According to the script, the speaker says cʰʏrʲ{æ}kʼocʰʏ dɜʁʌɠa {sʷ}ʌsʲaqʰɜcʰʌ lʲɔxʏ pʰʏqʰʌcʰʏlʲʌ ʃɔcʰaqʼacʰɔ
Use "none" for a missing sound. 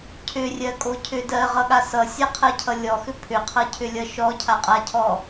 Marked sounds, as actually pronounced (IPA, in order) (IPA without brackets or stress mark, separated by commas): ɜ, s